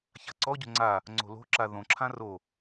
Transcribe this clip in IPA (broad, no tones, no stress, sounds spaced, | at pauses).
ç a̤ ǀ ɔ ɟ o̤ ŋ͡ǀ a | ŋ͡ǀ o̤ l o̤ ǁ a ð õ ǁʰ ã r o